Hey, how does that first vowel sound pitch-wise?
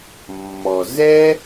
low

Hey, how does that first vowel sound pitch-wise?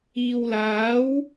low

